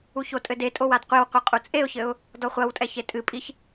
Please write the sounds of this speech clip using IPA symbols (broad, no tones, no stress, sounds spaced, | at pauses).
u ç o tʼ ɘ d e tʼ o w a d qʷ e w qʷ ɘ qʼ u t͡sʼ e ʊ̯ ç ɘ ʊ̯ | d ɔ χʷ ɐ w tʼ ɛ ç e tʼ ɨ pʼ i ç